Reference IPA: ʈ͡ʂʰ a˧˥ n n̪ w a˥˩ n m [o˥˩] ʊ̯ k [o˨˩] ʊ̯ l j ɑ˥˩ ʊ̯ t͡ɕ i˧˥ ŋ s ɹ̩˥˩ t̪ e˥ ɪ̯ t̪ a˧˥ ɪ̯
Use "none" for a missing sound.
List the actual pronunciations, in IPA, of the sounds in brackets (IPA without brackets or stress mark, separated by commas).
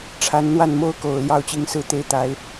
o˥, o˨˩